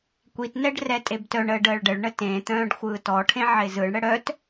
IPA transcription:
kʷitnɛɖ rɛtʼebtœɳəːɖ əːɭɖəɭɳə tẽt̪œ̃ːɖ xʷɯːtɔʈʰẽ ʕɪzɯɳɽə ɽœt

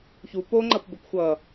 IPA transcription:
çu poŋ͡ǃʌpbɵp xʷʌ

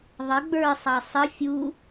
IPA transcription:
ðˤə ɡ͡bə˞sˤɑ sˤə fʲu

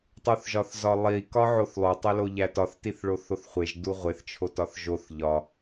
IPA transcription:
tˤuθʒɒθzɒlˠi kɒʕoθlˠo tˤeloʎætɒθ tiθɭoθoθχʷeʒ duʁʷeθ t͡ʃʰotɒθʒoθ ʎɒ

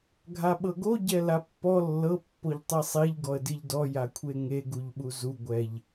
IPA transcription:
ɡʱaɓɤɡo ɟɛlapːɔ lːɤ pːoʎtˤisˤiʎ ɡɔə̯diʎdɔ jakʷʰeŋe ɡuʎɓuzu ɡʷɛʎ

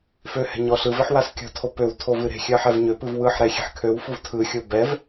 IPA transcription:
føhɛ̤ ɲɔɬɯveħ waskʲɔ̤tʰo pøw tʰovɨɾe̤ xʲɜħɛvɲøpɨv wɯħ ɾɛxʲɛ̤ħkʰøwfuv tʰɯxʲo bɛv

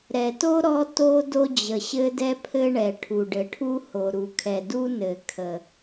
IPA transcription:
ɾɛ˩to˥ ɾɔ˥to˥ do˥d͡ʑə˩ɕɘ˥ dɛ˥pʰɘ˥ɳɛ˩ʈʰu˩ ɖɘ˩ʈʰu˥ho˩ ɾu˩kʰɛ˩ du˥ nɘ˩kʰə˩

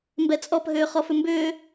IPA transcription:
mbɛt͡sʼɔp ɦʏːχɔfʏmbʏː

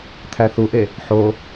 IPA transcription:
t̪ʰæθuʔe | ħo

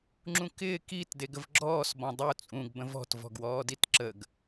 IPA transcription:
ŋ͡ǁũkɪː kit deɡəvɡ͡ǁɔːs bɔ̃dˤu t͡sʼũɡ bə̃vɔ̤t vɔ̤ɡwɔːditǁəɡ

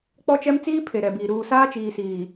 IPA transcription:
k͡pɔ˦t͡ʃɛ˦m t͡siː˦pʰe˨ ɾɛ˨biː˨ ɾuː˨saː˦t͡ʃiː˨siː˨

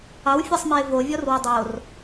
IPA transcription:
ɑwfʲɛsˤmɛɪ̯ vovʲɔrwʏ dˤor

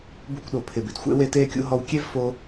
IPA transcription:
bṵ˧kʷɗo˩ pʰɪ˩bɪ˩d xʷḛ˧ we˧teː˧kʲṵ˧ ɦɔ˧wkʲe˥v fo˧

